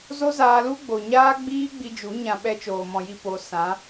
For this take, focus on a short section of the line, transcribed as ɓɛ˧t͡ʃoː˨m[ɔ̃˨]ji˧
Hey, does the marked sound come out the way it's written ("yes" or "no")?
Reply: yes